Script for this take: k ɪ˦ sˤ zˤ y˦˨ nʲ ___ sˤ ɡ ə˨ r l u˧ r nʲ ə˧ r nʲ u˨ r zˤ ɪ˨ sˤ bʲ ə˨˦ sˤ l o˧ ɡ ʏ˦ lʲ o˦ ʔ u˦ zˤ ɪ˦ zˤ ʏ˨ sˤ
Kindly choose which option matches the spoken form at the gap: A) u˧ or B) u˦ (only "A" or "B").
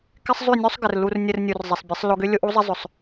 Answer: B